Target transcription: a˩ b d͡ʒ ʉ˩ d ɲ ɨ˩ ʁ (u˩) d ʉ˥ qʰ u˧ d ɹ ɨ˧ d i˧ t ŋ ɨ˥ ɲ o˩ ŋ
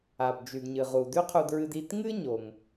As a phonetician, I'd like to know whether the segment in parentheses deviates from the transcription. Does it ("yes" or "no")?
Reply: no